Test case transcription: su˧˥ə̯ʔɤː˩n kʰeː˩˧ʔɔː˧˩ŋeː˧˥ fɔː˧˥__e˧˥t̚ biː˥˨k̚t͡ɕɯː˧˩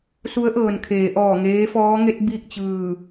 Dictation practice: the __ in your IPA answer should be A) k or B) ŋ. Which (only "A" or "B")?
B